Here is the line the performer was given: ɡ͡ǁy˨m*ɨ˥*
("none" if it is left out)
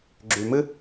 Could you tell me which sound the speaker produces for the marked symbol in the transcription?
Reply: ɨ˥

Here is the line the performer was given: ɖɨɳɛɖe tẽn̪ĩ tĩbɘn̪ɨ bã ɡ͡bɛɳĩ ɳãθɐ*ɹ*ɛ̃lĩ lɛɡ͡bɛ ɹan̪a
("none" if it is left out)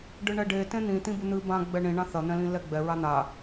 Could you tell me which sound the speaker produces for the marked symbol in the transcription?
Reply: n̪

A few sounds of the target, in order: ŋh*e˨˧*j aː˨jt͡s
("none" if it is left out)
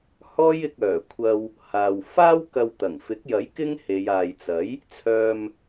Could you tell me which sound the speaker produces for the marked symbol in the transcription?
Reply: e˨˧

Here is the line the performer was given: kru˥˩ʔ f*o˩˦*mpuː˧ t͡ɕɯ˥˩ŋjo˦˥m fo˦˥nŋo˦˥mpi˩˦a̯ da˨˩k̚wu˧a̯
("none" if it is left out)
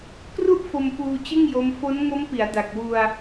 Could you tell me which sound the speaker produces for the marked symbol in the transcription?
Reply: o˧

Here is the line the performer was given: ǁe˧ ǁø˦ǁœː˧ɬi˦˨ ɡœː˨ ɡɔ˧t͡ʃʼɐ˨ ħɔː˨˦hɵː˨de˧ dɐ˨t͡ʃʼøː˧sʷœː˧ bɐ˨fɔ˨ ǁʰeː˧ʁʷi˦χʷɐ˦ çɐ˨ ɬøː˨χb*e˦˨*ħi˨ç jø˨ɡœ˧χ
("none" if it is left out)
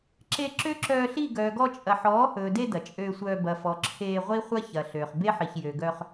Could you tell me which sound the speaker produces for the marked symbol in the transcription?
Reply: e˦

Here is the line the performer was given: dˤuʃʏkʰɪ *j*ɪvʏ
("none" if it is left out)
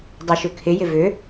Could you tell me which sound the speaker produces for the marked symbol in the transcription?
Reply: j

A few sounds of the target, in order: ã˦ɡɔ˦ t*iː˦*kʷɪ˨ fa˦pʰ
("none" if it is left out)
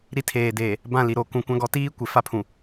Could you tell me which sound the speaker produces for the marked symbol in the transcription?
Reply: iː˦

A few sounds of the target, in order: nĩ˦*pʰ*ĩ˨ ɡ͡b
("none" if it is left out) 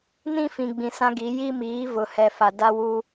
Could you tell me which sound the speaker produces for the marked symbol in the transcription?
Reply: f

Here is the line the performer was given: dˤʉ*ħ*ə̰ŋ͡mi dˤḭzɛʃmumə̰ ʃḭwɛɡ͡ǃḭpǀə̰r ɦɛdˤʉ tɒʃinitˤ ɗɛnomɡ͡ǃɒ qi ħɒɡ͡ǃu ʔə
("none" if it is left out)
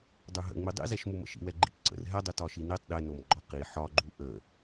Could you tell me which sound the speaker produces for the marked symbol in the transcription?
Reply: ɦ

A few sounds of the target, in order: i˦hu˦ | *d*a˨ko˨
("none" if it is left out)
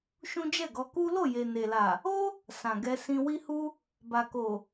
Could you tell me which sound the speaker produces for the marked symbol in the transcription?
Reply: b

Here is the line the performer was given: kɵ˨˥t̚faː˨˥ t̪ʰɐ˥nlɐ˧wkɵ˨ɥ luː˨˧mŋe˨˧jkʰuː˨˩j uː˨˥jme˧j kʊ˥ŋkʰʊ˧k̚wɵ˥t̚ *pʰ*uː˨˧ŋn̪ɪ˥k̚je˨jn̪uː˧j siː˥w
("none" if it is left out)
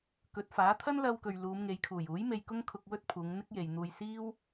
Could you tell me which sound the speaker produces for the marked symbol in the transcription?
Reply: pʰ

